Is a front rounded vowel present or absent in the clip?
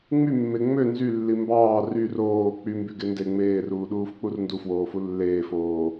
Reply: present